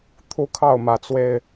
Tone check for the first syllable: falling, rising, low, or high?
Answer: high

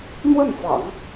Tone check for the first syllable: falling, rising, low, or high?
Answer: falling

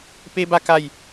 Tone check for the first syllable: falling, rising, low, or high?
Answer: high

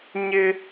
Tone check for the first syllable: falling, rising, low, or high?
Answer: high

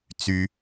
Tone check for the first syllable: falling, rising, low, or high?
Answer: high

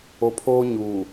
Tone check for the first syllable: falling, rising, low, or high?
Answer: low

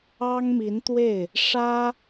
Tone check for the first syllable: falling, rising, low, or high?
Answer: high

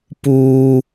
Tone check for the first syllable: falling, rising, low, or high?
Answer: low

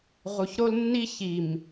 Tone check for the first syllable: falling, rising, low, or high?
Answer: low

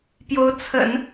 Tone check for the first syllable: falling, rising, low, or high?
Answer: rising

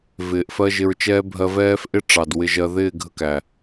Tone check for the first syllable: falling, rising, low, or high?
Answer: low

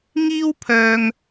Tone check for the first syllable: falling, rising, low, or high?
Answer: high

